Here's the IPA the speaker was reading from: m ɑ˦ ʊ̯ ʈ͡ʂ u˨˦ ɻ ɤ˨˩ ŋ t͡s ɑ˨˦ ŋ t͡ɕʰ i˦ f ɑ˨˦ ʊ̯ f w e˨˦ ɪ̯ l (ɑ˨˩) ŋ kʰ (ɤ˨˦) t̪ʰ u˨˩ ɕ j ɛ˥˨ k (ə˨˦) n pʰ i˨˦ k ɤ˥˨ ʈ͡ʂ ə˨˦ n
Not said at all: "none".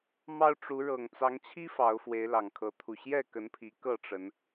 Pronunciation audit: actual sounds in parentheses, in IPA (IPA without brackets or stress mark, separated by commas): ɑ˨˩, ɤ˨˦, ə˨˦